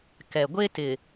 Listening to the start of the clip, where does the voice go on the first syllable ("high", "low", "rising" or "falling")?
low